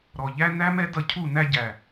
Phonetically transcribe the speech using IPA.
ɾ ɔ˨ ʎ æ˦ n æ˦ m ɛ˦ d ʌ˧ cʰ u˦˨ n æ˧ ɟ æ˨

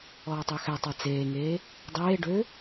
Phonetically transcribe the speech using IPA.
ɔː tˤ ø x ɛ tˤ a t͡s eː ŋ eː | dˤ eː ɖ ø

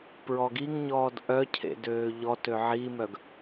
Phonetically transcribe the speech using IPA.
p ɹ ɔ ɡ i ŋ ɲ ɔː d ʔ œ cʰ ḛ d øː ʎ ɔ t ø ʕ i m œ ɡ

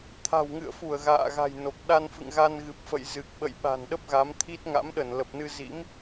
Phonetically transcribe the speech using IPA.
t̪ʰ a̤˨˩ w ŋ ɨ̰˧˨ ə̯ f u˧˩ ə̯ ɣ a̰ː˧˨ ɣ a̤˨˩ j n o˨˩ k̚ ɗ a˧ n f ɨ̰˧˨ ŋ ɣ a˧ n ɣ ɨ˨˩ p̚ f ə̰˧˨ j z ɨ˨˩ k̚ ɓ ə̰˧˨ j ɓ a̤˨˩ n ɗ ə˦˥ p̚ ɣ a˨˦ m t̪ʰ i˦˥ t̚ ŋ a̰˧˥ m ɗ ə˧˩ n l ə˨˩ p̚ n ɨ˧ z ḭ˧˥ m

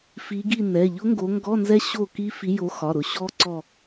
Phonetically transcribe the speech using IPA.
f i˨˦ ɡ i˦˨ n ɛ˩˧˩ ʎ ʊ˦˥ ŋ ɡ o˨˦ ŋ ɡ ɔ˧˥˧ n z ɛ˦˥ ɕ o˦˨ k i˦˥ f i˨˦ j o˨˦ x ɒ˩˧˩ ɾ ʊ˨˦ ɕ ɔ˦˥ ǀ ɔ˦˨

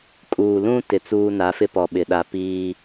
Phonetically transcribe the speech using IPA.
kʼ uː˨ l ũ˦ t ɪ˨ t͡s uː˦ n a˨˦ f ɪ˦ p ɔ˨ ɓ ɪ˨ ɗ a˨ p iː˦

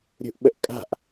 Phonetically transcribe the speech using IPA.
ɾʲ ṳ ʔ ɓ ə ʔ kʼ a̤ ʔ

